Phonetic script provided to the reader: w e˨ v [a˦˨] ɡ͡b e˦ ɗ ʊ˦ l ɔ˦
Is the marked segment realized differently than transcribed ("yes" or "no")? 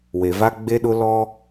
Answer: yes